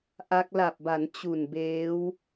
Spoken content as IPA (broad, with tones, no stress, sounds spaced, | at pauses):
ʔ a˦˥ k̚ l a˨˩ p̚ b a˩˦ n t͡ɕ u˨˩ n b eː˦˥ w